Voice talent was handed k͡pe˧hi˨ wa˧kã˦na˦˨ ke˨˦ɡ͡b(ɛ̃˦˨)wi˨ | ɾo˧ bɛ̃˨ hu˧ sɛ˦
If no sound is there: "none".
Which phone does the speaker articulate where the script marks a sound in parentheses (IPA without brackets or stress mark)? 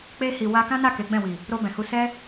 ɛ̃˦˨